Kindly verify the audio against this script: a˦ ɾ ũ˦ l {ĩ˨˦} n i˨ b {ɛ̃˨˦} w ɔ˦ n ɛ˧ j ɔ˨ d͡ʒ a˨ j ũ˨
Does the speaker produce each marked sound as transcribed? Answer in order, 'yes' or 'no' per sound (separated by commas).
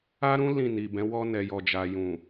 no, yes